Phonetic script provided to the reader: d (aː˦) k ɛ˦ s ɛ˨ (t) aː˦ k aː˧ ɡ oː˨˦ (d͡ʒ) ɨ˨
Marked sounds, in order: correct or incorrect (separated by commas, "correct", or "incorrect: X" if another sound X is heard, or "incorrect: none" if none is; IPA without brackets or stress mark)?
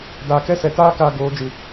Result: incorrect: aː˨, correct, correct